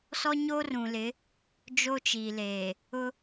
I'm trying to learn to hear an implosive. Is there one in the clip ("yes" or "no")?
no